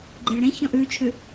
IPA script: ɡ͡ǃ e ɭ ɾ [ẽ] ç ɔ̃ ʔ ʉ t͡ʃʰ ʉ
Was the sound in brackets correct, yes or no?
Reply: yes